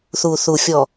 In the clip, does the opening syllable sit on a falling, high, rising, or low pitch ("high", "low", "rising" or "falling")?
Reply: low